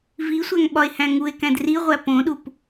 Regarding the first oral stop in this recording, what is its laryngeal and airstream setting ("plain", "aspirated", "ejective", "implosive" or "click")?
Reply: implosive